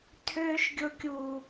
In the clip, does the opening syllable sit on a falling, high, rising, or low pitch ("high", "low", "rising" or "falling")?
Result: high